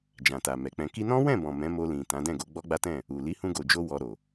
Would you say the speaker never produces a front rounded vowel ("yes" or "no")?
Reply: yes